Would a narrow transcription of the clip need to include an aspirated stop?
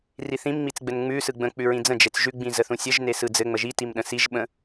no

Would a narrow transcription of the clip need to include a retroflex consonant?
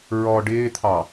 yes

